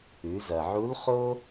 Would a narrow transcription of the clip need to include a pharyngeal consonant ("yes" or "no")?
yes